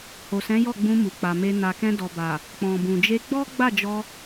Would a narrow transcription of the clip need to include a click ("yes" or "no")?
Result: no